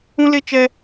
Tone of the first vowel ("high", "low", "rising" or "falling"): high